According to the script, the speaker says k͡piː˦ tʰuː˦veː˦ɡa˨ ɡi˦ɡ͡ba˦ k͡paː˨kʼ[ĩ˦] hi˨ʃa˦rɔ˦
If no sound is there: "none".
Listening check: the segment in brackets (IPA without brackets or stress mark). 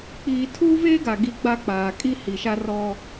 i˦